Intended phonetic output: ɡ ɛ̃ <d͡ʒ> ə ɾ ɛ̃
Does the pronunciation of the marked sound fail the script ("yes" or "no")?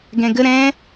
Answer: yes